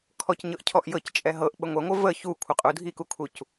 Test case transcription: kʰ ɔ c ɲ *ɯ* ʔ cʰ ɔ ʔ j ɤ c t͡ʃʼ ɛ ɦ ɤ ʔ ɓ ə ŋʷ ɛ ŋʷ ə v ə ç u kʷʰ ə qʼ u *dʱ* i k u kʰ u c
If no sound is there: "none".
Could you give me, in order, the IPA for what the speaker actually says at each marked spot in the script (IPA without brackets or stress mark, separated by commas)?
ɤ, dʱ